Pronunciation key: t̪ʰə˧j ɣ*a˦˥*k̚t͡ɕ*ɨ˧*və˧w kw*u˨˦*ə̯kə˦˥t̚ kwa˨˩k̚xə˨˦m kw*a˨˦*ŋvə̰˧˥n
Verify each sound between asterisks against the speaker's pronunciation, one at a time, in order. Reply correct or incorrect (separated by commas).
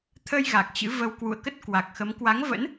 incorrect, incorrect, incorrect, correct